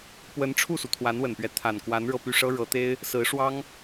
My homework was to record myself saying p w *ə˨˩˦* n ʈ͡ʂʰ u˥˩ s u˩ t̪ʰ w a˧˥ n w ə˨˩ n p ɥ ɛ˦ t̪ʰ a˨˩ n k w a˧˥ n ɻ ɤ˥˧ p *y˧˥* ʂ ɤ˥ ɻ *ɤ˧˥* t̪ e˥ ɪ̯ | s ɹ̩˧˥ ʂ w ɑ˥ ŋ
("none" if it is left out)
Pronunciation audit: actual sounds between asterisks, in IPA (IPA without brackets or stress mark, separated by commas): ə˧˥, y˥˩, ɤ˧˥